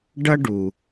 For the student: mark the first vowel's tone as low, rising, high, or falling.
high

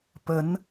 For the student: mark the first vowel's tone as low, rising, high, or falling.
rising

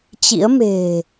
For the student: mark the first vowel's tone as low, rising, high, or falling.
rising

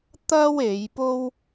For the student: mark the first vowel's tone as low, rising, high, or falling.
high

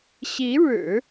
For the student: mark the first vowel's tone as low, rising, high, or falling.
rising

